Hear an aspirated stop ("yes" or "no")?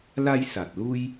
no